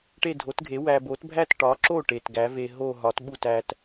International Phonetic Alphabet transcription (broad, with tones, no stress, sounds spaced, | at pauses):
ʈ e˥˧ dʱ o˨˥ t ɡʱ e˨˥ w æ˧ b o˨˥ t bʱ æ˥˧ t ʈ ɒ˨˥ ǁ o˥˩ ʈ e˨˩ t ɡ æ˨˥ v e˧ ɦ o˥˧ ɦ ɒ˨˥ t ɓ u˥˩ t æ˧ t